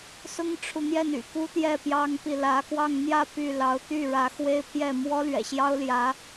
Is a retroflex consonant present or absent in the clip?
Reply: present